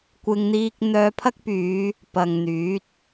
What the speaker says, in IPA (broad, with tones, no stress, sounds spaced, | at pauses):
kʷ ɪ˧ ŋ n̪ iː˧ k̚ n̪ œː˧ pʰ ɐ˥ k̚ p yː˨˧ | p ɐ˨ ŋ n̪ yː˨˥ t̚